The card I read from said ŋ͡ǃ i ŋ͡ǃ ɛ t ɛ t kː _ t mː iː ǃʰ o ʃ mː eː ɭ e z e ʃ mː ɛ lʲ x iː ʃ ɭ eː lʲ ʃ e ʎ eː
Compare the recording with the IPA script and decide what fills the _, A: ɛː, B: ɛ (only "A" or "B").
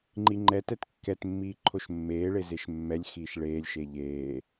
B